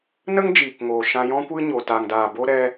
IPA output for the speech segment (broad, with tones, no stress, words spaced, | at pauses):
nə˦ŋd͡ʒiː˨kŋoː˨ ʃã˧jɔ̃˦kʷɨ˦ɲo˨ ta˨ŋdaː˨bo˧ ɾɛ˧